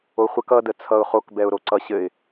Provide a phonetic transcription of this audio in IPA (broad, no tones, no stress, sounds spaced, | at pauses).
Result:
o χʷ ə k ʌ d ə t͡sʰ ʌ ʊ̯ χ o k b ɛ ʊ̯ ɾ o ǀ ʌ ɕ ɘ ɪ̯